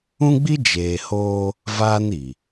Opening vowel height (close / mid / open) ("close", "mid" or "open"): close